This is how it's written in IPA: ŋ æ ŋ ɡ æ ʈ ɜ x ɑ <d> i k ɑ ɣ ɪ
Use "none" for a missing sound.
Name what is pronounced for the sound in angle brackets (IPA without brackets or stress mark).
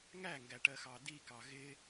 d